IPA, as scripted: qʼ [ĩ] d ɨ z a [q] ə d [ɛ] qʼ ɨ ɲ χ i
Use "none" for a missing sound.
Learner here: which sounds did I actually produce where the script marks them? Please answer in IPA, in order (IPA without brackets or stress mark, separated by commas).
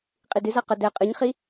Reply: i, q, ɛ